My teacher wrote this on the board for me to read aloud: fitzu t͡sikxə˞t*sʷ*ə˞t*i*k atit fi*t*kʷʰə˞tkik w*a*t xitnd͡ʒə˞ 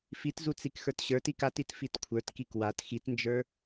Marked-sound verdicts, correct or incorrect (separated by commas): incorrect, correct, correct, correct